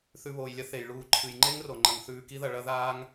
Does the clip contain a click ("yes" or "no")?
yes